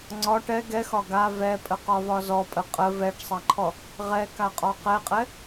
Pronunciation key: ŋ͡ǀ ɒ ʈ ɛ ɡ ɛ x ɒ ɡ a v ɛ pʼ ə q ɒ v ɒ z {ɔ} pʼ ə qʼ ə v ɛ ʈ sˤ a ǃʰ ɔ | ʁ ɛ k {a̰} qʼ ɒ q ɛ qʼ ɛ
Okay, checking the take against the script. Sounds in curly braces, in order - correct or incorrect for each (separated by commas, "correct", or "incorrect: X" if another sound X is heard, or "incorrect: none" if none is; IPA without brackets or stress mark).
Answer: correct, incorrect: a